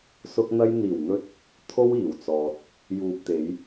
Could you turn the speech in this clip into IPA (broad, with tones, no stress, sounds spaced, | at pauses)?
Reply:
s ʊ˥ k̚ n̪ ɐ˥ j n̪ iː˨˩ w n̪ ɵ˧ t̚ | t̪ʰ o˥ w iː˨˩ w t͡s ɔː˨ t̚ | j uː˨ p̚ t̪ e˨˧ j